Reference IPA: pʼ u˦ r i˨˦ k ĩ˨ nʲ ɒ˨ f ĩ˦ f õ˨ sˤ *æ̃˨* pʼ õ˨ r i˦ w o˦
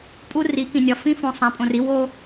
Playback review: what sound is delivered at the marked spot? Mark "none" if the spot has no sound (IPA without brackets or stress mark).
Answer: æ̃˨